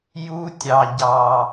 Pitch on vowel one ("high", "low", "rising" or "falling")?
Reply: high